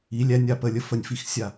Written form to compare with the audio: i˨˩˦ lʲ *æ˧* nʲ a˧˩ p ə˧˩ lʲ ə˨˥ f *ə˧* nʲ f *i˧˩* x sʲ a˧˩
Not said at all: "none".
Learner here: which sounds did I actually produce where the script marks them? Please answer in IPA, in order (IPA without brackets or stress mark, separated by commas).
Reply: æ˧, ə˧˩, i˧˩